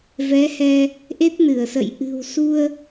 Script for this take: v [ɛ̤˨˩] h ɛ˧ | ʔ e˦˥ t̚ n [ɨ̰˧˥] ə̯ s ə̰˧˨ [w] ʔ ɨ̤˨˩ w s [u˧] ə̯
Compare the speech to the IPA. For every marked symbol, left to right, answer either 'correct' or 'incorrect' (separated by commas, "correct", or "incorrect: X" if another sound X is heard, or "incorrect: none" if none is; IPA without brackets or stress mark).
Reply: incorrect: ɛ˨˦, incorrect: ɨ˧˩, incorrect: j, correct